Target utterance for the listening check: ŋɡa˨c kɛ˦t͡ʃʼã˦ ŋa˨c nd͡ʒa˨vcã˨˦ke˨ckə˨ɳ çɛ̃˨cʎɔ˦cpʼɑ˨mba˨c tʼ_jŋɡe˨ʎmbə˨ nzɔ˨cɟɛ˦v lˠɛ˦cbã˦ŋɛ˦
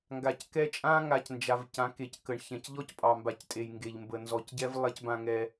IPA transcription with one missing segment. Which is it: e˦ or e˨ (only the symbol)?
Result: e˨